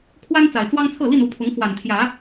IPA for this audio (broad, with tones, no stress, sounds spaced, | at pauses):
kʰ w a˦ n t͡s a˨˩ ɪ̯ t͡s w ɑ˦ ŋ t͡sʰ ɤ˥˨ l i˥˨ n u˥˨ pʰ ʊ˨˦ ŋ f w a˨˩ n t̪ʰ j ä˨˦